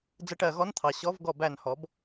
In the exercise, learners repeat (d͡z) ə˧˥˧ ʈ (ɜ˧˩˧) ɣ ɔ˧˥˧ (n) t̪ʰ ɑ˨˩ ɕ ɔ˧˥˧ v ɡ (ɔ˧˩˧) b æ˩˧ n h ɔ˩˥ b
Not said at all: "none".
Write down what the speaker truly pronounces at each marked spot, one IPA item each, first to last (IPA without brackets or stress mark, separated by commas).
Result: d͡z, ɜ˧˩˧, n, ɔ˧˩˧